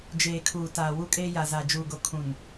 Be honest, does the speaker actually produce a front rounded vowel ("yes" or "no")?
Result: no